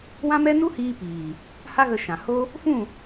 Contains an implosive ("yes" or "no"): no